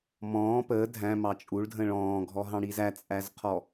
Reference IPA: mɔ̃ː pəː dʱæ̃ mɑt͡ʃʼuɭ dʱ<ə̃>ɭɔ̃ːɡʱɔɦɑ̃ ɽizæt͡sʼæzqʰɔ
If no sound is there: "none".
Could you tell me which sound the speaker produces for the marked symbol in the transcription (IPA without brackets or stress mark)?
ə̃